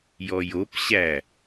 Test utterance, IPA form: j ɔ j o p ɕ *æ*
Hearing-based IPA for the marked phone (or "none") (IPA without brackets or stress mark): æ